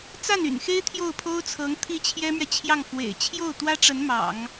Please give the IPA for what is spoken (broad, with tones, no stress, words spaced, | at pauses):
t͡sa˥˩ny̰˨˩nxe˥ɪ̯ t̪ʰjo˥˩ʊ̯pʰo˥ʊ̯t͡sʰɤ˧˥ŋ t̪ʰi˥˩t͡ɕʰjɛ˥mɥɛ˨ t͡ɕʰjɑ˥˩ŋfwḛ˨˩ɪ̯ t͡ɕʰjo˥˩ʊ̯t̪wä˥ʈ͡ʂə˧˥n mɑ̰˨˩˦ŋ